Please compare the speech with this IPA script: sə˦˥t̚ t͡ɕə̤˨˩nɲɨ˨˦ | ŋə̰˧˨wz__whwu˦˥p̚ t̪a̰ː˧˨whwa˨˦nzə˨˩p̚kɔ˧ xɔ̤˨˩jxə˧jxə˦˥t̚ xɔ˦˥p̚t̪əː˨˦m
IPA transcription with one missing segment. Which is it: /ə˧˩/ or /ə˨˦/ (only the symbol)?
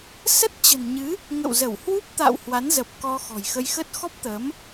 ə˧˩